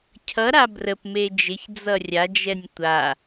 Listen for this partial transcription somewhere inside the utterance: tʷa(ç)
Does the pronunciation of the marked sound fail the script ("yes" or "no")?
yes